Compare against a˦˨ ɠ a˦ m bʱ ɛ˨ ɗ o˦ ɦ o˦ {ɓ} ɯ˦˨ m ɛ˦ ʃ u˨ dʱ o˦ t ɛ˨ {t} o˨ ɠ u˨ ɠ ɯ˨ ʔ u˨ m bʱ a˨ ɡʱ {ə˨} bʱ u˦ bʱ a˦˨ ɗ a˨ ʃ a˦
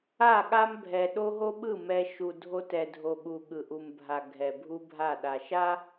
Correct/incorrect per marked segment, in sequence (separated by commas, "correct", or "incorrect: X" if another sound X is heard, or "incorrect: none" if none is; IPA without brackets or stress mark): correct, incorrect: dʱ, incorrect: ɛ˨